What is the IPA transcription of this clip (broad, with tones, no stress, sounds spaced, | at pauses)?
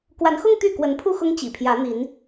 k w a˨˦ n x ʊ˦ ŋ t̪ y˥˨ k w ə˨˦ n pʰ u˥˨ x ʊ˦ ŋ t͡ɕ ḭ˨˩ pʰ j ä˨˦ n̪ i˨˦ n